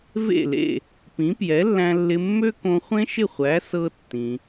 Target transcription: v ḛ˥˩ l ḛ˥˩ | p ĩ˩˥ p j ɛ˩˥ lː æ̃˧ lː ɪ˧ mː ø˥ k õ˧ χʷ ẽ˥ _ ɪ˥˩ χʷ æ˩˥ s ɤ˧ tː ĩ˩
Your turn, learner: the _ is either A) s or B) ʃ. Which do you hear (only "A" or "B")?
B